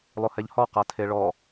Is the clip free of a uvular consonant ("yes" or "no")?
no